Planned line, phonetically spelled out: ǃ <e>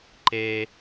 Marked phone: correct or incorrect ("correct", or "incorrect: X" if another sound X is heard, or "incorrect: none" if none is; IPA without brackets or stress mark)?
correct